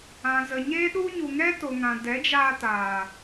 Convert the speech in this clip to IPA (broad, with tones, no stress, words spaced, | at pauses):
ã˨zə˨ɲe˦ɗu˦ ɲu˨ŋɛ˦to˨ ŋã˨dɛ˨˦d͡ʒaː˧ taː˨